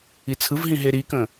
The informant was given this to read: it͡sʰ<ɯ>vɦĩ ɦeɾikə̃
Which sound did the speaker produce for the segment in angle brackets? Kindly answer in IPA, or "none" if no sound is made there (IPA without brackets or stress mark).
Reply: ɯ